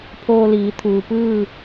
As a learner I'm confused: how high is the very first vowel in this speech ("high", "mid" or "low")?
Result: mid